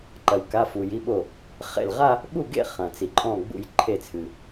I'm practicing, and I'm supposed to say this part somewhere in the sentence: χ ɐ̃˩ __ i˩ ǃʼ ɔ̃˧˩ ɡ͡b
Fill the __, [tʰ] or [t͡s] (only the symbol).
t͡s